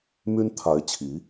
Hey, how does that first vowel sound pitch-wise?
high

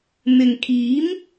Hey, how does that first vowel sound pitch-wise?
low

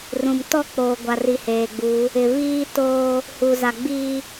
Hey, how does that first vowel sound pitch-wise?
low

